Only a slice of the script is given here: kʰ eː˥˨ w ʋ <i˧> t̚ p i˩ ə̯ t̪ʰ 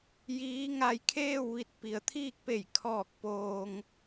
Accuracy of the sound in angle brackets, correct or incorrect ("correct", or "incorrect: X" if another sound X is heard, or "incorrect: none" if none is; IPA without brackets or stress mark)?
correct